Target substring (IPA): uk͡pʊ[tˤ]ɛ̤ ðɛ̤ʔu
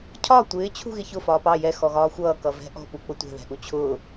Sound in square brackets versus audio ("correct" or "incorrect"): incorrect